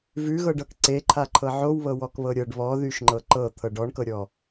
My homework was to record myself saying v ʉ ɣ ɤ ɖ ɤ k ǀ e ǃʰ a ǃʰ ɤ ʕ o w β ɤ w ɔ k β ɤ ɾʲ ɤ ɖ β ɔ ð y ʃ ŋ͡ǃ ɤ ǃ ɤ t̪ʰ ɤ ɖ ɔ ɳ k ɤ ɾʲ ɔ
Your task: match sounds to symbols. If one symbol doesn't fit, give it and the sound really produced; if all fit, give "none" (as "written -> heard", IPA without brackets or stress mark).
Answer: none